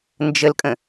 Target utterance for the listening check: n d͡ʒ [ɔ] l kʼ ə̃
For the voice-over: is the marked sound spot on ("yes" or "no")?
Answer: no